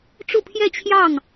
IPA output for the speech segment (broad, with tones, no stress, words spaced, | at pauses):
ʈ͡ʂu˥˧pʰjɛ˥˧t͡ɕʰjɑ˥˩ŋ